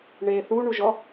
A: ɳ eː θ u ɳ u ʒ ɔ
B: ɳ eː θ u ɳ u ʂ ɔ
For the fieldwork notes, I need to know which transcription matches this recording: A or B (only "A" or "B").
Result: A